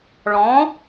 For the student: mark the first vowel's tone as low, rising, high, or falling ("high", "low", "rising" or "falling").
rising